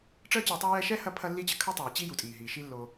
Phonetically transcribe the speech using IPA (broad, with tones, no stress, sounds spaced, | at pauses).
ʈ͡ʂ əː˦ t͡ɕ əː˨ tˤ ɛ˦ j ɛ˦ ʃ ɛ˥ h ɐ˦ pʰ ɐ˥ lː i˥ t͡ɕ ə˨ kʰ ə˥ tˤ ɛː˨ t͡ɕ i˥ j u˩ tʼ iː˩ ɦ iː˩ ʃ i˦ lː o˨